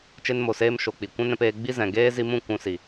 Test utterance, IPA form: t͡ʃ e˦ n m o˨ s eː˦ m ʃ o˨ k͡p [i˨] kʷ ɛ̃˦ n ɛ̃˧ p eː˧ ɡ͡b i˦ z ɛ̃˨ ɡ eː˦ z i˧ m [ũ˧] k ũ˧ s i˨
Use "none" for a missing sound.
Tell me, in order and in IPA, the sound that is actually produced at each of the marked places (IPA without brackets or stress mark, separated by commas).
i˨, ũ˦˨